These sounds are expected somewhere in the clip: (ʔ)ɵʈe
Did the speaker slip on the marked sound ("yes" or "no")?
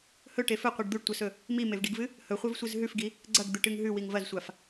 yes